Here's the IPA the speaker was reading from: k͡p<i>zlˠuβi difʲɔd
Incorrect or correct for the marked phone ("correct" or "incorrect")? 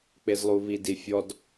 incorrect